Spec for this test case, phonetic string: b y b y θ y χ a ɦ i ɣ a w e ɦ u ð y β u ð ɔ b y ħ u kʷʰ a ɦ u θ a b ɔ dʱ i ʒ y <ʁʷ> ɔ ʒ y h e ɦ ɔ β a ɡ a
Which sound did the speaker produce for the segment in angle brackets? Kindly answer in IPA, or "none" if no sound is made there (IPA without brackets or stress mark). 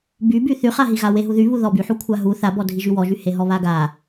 w